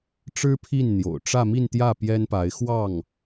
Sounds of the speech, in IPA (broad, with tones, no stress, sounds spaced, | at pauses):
ʈ͡ʂ ɻ̩˥ pʰ i˥˩ n n̪ j o̰˨˩ ʊ̯ ʈ͡ʂ ä˥˧ m i˥˧ n t̪ j ä˥˩ p j ɛ˥ n p a˧˥ ɪ̯ x w ɑ˥˩ ŋ